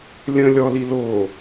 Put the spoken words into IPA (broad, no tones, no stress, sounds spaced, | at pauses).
lʲ ə̃ lʲ ɔ l i l o